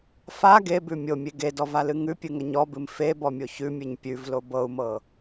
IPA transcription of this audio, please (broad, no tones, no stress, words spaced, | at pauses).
fa ɡebʉ mʲomʲe ɡedɔvalɨ ŋʉpʲɨŋə ɲɔbɨm febɔmʲo çʉmʲɨɲ pʲʉvlo bɤu̯mɤ